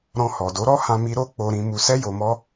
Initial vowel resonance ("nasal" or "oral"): nasal